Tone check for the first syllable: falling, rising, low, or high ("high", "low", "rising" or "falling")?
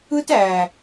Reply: high